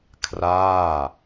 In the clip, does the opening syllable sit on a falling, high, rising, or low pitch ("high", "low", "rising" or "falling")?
falling